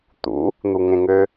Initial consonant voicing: voiceless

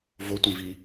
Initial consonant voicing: voiced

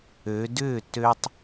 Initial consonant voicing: voiced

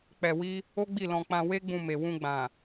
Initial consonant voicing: voiceless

